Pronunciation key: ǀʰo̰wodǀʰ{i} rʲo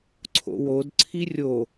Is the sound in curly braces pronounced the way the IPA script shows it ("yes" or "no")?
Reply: yes